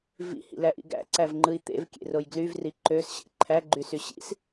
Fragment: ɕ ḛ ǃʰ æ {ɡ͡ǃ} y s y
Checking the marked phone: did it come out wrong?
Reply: no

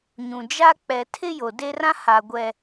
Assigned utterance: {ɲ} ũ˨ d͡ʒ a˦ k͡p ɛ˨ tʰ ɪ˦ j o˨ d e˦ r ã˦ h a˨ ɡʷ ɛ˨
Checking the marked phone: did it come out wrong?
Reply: no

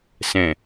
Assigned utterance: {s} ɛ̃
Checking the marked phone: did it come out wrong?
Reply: no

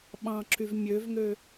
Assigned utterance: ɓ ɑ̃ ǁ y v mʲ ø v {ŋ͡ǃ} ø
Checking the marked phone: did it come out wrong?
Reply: yes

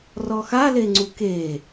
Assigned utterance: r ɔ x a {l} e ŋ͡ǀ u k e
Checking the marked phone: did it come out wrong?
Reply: no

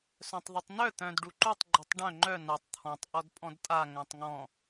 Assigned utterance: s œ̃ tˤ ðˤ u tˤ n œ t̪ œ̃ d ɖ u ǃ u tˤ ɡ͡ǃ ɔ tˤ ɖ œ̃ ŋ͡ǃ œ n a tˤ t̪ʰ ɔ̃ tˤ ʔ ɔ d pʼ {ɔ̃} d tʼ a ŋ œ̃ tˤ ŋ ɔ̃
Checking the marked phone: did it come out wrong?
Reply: no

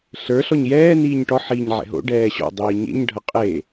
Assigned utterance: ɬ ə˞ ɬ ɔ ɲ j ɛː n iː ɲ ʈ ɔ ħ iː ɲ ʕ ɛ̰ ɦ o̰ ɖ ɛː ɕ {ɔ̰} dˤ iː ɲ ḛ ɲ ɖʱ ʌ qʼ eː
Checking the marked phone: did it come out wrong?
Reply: no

